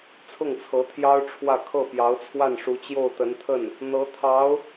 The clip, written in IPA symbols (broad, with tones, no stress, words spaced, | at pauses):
t͡sʰʊ˥˩ŋt͡sʰɤ˧˥t̪ʰjɑ˥ʊ̯ ʈ͡ʂʰwä˥˧ kʰɤ˥˩ pjɑ˧˥ʊ̯t͡sʰwa˥˩nʂu˧˥ t͡ɕjo˥˩ʊ̯t̪ə˧˥nt̪ʰə˥˩n | n̪ɤ˧˥t̪ʰɑ˧˥ʊ̯